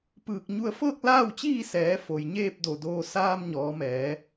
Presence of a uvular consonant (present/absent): absent